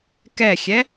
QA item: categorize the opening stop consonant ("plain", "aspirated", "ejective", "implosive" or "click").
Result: plain